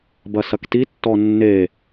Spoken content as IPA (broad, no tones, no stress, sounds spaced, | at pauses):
b ɐ s ɐ k t i tː ɔ nː e